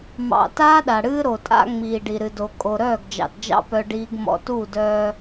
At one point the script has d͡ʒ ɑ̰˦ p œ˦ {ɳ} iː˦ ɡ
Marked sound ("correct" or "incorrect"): incorrect